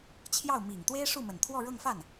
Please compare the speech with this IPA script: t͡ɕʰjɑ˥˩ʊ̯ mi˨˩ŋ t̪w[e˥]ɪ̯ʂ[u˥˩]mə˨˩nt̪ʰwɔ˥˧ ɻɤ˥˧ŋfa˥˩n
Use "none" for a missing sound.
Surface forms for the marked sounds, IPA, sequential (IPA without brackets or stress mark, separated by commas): e˥, u˥˩